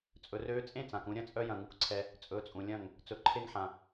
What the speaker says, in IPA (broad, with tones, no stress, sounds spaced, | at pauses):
t͡sʼ ɵ˨ r øː˧ t͡sʼ ẽ˦˨ t͡s ã˨ k ũ˧ ɾʲ ɐ̃˦ t͡sʼ œ˦ j ɐ̃˧ ŋ u˧ k ǀʰ ɛ˧ | t͡sʼ ɵ˨˦ t͡sʼ ũ˨ lʲ ɐ̃˦˨ ŋ | t͡s ɵ˨ ǃʰ e˧ ŋ ħ ã˨